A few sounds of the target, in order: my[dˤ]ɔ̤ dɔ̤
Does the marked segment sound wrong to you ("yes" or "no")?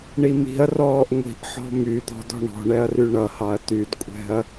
yes